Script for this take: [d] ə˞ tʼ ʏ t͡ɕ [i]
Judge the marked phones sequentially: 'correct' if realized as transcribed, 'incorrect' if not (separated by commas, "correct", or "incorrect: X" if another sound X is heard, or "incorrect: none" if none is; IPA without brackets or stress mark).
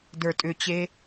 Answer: correct, incorrect: e